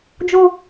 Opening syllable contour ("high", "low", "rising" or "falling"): low